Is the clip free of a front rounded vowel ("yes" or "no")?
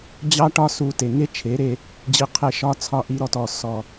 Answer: yes